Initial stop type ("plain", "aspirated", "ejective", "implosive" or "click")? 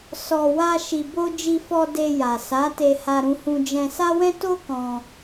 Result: plain